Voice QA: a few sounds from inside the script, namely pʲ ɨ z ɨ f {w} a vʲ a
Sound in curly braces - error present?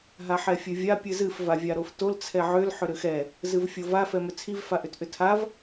yes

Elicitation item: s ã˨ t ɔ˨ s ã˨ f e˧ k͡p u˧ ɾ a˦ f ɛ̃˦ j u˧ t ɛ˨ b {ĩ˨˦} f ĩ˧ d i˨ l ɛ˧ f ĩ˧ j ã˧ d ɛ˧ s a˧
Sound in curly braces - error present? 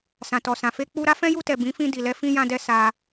no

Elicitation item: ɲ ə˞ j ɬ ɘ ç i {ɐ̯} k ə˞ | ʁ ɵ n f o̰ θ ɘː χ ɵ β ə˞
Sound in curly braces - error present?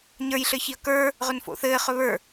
no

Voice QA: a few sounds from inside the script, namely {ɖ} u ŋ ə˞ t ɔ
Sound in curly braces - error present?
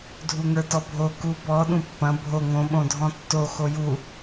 yes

